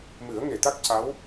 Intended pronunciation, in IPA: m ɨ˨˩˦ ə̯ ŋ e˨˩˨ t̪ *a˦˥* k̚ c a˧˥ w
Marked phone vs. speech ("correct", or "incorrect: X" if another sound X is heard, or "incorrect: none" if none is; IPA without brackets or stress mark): correct